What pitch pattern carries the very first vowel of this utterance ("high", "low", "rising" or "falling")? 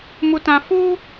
low